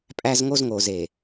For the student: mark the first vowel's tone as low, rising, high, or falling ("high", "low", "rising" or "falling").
high